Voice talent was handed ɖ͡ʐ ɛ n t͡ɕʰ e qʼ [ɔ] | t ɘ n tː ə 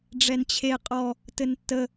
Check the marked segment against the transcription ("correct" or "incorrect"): correct